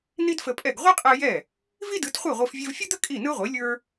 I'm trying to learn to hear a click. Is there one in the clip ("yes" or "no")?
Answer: no